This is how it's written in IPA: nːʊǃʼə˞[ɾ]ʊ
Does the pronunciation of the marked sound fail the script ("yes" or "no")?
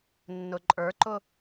yes